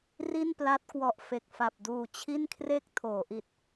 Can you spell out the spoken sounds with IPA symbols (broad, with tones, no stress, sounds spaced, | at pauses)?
r i˥˩ n p l a˦˥ t̚ k w ɔ˨˩ ʔ f e˨˩ k̚ f a˨˩ p̚ d uː˨˩ t͡ɕʰ i˥˩ n kʰ r e˥˩ k̚ tʰ oː˩˦ ʔ i˨˩ t̚